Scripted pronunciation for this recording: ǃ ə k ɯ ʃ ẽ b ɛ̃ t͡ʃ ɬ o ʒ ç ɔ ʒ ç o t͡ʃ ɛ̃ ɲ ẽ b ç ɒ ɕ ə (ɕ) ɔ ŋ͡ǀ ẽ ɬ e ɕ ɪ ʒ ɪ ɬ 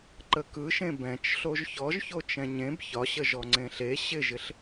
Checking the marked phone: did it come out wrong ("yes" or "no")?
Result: yes